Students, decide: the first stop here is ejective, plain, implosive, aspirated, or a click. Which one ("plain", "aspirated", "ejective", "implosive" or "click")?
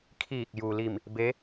aspirated